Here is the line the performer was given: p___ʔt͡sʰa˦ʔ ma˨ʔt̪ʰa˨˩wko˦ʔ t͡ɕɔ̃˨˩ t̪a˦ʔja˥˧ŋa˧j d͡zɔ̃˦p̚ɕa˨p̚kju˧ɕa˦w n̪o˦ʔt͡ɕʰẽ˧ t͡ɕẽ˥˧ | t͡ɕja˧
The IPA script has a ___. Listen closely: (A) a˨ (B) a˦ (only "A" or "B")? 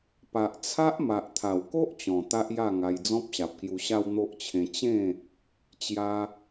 A